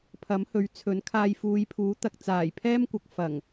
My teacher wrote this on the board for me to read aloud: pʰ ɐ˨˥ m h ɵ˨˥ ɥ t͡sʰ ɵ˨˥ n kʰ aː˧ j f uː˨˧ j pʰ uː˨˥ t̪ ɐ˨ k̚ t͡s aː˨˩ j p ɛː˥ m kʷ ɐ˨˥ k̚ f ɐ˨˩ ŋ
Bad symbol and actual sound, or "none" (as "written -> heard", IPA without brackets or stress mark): p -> pʰ